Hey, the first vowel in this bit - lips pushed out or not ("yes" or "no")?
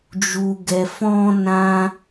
yes